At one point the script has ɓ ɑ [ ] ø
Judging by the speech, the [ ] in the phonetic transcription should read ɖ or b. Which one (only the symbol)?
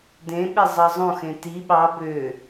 b